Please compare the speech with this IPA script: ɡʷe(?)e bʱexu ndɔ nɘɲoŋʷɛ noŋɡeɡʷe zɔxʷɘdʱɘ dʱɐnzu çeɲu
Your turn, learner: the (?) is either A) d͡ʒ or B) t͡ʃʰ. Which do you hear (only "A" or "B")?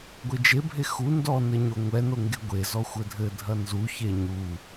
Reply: A